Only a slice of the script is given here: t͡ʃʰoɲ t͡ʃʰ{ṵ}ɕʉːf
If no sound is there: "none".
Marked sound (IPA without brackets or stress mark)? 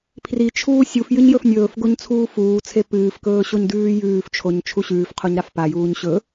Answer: u